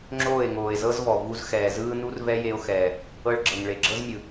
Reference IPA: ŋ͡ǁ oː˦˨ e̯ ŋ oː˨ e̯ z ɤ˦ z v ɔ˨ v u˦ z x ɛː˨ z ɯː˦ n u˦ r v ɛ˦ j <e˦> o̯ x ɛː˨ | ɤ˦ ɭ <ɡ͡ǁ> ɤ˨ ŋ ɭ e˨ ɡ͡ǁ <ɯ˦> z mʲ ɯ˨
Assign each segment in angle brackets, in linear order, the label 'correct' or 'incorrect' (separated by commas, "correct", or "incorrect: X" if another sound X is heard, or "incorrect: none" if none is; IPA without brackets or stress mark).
correct, correct, incorrect: ɤ˦